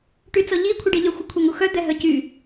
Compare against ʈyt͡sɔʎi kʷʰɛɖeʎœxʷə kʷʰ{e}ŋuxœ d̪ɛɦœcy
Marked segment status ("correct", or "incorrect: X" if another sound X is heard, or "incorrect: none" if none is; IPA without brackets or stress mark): correct